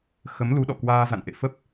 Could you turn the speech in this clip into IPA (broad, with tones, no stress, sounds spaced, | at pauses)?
x ə˨˦ m l u˨˦ ɗ ɔ̰˧˨ k w aː˧ z a̰˧˨ n ʔ ḛ˧˨ f ə˦˥ p̚